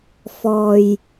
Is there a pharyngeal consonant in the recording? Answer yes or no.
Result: no